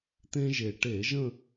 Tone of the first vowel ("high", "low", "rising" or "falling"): high